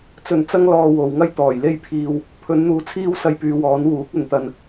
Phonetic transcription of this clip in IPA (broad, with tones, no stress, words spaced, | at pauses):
t͡sɵ˨˩n t͡sɐ˥ŋlɔː˧ wo˨wŋɐ˥j t̪ɔː˨˩jle˥jpʰiː˧w | pʰɵ˨˥nn̪uː˨˧t͡sʰiː˥w sɐ˧jpyː˨˧wɔː˨˥n wuː˨˥k̚ɵ˨nt̪ɐ˧n